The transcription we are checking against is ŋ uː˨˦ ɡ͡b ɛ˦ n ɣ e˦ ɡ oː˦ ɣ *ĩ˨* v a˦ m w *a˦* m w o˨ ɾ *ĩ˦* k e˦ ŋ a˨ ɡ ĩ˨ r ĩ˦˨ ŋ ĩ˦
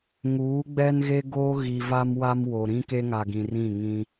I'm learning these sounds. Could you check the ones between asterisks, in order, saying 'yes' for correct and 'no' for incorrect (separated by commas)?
no, yes, yes